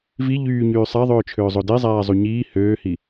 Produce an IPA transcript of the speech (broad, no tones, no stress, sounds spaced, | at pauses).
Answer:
v i ʎ yː ɲ yː sˤ æ ðˤ øː t͡ʃʰ øː zˤ o d e zˤ æː zˤ u ɲ iː h øː h i